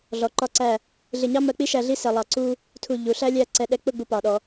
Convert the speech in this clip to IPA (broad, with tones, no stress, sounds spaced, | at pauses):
ɮ ɔ˩˧ ǃ ɒ˧ ǀ æ˧˩ | ɮ ɪ˧˩ ɲ ɑ˥ m ɜ˧ k͡p i˥ ʃ æ˧ ɮ i˥˧ s ɛ˧ lˠ ɑ˧ ǀ u˥ | tʰ u˧˩ ʎ u˩˧ ɬ æ˥ lʲ æ˥˧ ǀ ɛ˧ ɗ ɛ˧ k͡p ʊ˥˧ ɡ͡b u˧ p ɑ˩˧ ɗ ɔ˩˧